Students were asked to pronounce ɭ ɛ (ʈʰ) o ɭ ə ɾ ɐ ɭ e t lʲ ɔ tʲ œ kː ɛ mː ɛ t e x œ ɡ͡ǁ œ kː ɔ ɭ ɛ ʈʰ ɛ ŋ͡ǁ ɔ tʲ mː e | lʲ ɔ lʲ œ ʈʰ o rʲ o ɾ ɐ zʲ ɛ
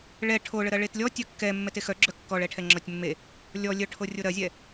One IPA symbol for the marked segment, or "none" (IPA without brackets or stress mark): ʈʰ